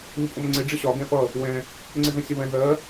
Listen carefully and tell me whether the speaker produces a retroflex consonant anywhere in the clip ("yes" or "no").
yes